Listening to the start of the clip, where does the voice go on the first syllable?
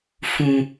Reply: low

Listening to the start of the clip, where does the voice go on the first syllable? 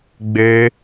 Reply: high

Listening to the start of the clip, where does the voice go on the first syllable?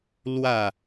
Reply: falling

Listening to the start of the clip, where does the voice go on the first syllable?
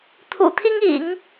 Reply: low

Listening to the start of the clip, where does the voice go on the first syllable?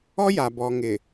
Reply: high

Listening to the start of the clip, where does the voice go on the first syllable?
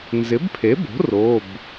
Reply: rising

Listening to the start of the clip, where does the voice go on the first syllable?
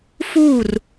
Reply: falling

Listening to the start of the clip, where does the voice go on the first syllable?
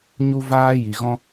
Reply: high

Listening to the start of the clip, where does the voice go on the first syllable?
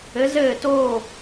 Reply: rising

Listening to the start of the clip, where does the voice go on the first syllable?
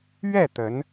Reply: falling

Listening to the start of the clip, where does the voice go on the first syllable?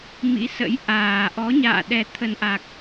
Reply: rising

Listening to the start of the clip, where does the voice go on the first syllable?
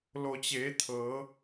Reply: low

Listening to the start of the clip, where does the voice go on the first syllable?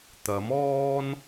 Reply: rising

